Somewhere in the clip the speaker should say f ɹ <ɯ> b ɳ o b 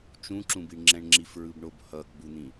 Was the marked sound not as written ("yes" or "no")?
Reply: no